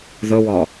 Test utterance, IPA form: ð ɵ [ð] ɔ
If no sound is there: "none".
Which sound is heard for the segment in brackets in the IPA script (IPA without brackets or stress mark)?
w